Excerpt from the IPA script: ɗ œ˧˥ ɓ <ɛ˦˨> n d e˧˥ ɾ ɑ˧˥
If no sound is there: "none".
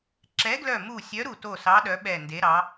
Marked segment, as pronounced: ɛ˦˨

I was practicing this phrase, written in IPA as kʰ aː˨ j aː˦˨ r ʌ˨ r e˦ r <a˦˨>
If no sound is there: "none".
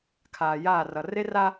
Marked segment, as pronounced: a˦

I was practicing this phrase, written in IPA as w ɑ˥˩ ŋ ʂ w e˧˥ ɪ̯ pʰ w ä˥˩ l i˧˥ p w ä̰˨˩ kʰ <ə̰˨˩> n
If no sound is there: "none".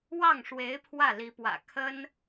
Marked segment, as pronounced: ə˥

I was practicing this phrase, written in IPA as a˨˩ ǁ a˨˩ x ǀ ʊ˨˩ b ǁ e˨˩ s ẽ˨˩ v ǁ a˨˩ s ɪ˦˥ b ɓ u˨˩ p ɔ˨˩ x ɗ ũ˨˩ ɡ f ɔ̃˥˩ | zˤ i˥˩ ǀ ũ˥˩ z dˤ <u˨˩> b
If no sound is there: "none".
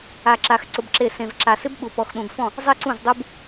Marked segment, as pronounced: u˦˥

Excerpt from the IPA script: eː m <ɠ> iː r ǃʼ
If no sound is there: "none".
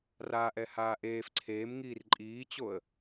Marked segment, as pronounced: ŋ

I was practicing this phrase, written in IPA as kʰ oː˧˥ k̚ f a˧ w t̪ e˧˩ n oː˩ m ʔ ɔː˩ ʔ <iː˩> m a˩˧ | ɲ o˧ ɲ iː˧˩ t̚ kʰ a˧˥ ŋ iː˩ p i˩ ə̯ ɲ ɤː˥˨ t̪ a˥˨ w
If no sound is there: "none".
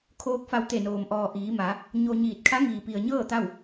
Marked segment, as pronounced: iː˩˧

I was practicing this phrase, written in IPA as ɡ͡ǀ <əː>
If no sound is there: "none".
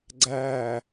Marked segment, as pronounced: æː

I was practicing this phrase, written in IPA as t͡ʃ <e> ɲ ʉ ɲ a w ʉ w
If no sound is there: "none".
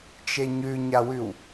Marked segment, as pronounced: e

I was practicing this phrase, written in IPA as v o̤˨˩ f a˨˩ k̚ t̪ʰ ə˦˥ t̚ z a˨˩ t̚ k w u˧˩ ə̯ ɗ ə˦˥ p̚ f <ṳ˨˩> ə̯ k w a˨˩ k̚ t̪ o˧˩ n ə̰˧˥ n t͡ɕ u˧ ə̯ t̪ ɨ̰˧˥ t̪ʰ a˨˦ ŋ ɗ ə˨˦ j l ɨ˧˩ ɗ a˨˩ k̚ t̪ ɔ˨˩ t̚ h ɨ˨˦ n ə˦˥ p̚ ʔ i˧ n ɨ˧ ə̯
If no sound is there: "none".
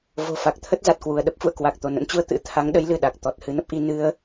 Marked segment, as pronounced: ṵ˧˨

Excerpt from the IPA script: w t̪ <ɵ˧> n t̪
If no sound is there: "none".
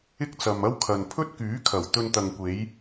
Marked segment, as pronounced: ɵ˧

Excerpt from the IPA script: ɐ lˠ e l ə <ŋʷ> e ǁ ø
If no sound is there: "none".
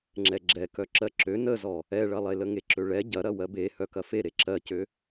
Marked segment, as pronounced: ŋ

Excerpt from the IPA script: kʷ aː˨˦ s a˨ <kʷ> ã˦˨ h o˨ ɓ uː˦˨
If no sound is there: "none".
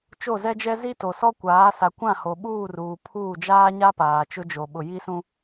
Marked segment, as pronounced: kʷ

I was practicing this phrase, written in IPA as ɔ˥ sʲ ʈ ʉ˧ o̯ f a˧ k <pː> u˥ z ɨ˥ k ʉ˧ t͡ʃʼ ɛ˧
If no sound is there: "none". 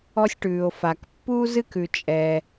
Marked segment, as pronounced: pː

